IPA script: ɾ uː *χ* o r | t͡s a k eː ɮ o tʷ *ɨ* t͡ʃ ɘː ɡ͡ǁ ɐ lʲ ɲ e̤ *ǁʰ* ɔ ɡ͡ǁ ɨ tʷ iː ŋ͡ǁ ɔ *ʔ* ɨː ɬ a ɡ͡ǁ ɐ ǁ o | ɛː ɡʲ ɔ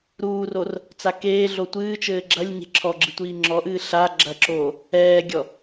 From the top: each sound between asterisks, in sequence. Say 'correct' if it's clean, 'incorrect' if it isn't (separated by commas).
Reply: incorrect, incorrect, correct, correct